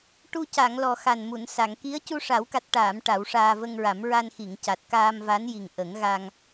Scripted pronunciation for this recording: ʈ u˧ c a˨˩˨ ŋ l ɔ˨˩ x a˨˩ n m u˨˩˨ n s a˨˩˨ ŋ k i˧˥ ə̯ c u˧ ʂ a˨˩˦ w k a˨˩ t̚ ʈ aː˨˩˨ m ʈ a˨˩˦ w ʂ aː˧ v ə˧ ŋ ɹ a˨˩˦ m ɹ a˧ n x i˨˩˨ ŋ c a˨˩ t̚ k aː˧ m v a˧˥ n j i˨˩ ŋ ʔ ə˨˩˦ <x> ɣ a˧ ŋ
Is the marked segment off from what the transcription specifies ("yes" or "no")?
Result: yes